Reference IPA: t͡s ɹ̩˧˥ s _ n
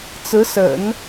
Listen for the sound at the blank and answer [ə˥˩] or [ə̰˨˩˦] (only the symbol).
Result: ə̰˨˩˦